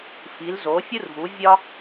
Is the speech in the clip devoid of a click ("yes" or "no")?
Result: yes